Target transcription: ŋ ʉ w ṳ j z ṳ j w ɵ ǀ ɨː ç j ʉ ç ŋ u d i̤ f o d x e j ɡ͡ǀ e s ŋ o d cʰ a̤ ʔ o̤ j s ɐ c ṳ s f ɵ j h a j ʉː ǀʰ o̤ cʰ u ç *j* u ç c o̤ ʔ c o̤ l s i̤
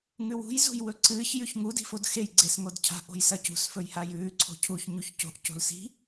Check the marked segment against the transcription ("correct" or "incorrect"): incorrect